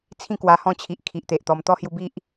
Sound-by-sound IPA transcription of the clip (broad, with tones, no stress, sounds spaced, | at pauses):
t͡sʰ ĩ˥˧ k w a˧ h ɔ̃˥˧ t͡ɕʰ i˨ ʔ kʰ i˨ ʔ t̪ e˨ ʔ t̪ ɔ˧ m t̪ ɔ˦ h j u˧ b i˦ ʔ